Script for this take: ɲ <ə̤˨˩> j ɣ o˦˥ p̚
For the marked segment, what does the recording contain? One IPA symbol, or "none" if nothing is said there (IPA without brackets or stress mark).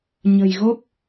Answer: ə̤˨˩